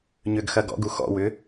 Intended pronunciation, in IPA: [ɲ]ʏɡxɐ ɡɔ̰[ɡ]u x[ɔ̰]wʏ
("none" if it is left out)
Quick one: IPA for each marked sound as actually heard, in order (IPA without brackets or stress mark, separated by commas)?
ɲ, ɡ, ɔ̰